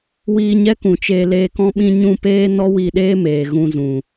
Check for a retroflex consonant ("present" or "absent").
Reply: absent